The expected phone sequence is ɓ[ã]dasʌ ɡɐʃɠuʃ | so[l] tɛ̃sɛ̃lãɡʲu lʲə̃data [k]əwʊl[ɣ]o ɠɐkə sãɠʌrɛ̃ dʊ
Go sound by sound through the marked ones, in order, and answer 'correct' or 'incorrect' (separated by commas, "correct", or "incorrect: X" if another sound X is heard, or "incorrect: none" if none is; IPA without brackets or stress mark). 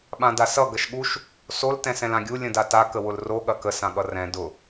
correct, correct, correct, incorrect: r